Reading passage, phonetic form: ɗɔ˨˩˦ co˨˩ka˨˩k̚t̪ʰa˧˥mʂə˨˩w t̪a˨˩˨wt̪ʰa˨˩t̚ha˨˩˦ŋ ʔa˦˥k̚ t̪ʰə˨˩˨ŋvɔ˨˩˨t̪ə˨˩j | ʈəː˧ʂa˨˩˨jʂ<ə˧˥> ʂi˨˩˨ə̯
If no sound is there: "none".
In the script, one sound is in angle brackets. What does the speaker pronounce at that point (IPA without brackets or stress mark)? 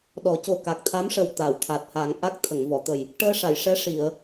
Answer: ɛ˧˥